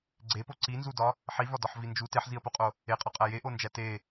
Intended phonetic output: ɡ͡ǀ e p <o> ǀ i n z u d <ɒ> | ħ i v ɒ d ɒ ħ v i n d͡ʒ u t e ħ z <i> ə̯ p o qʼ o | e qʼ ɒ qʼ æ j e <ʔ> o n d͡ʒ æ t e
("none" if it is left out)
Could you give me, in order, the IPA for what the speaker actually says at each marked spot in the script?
o, ɒ, i, ʔ

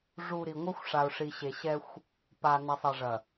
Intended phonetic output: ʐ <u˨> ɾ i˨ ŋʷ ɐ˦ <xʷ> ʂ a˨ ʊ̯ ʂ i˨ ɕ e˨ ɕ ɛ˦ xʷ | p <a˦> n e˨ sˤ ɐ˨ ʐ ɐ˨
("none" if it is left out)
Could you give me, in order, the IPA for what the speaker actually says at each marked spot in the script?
u˨, xʷ, a˨

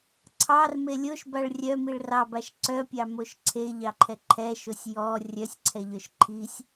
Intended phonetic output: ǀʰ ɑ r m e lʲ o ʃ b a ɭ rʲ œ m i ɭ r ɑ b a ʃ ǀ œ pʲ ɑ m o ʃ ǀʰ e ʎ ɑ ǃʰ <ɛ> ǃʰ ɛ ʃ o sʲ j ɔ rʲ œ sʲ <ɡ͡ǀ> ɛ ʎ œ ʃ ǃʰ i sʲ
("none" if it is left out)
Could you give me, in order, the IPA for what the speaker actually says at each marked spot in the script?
ɛ, ǀʰ

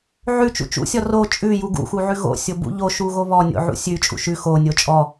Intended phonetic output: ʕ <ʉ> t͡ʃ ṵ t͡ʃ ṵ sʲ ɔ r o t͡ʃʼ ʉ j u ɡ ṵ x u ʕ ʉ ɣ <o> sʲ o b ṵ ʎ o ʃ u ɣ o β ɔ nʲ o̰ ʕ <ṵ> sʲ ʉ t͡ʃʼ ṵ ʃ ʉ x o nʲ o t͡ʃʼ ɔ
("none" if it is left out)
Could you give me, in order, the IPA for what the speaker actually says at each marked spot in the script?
ʉ, o̰, ṵ

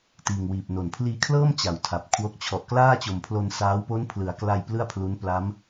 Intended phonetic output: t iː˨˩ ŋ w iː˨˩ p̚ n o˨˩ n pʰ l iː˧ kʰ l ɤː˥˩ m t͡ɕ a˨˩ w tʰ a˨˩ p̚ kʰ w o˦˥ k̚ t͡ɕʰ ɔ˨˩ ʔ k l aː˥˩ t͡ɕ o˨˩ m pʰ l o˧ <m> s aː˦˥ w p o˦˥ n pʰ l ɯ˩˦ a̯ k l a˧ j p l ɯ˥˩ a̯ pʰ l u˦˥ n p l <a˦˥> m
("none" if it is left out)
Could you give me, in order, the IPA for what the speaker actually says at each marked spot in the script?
n, a˦˥

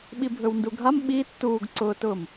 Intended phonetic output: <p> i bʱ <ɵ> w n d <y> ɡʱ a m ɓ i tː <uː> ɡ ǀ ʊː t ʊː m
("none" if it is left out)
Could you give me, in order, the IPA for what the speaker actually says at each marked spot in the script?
ɓ, ɵ, u, uː

